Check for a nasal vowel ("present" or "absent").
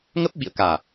absent